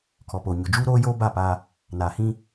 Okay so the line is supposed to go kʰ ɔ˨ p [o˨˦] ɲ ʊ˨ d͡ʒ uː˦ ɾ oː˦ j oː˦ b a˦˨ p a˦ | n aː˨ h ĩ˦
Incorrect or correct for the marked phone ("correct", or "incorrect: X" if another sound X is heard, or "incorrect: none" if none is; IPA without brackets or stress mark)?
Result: incorrect: o˨